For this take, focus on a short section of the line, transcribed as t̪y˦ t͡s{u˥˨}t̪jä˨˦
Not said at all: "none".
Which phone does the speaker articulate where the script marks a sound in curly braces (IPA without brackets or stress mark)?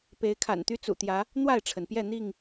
ṵ˨˩